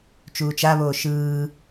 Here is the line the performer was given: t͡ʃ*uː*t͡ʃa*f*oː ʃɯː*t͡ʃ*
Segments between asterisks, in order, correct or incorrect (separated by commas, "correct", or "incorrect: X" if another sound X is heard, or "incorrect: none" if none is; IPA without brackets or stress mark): correct, incorrect: β, incorrect: none